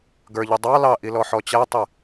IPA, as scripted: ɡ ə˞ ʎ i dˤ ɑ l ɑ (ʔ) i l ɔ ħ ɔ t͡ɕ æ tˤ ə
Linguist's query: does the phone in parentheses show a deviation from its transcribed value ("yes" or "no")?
no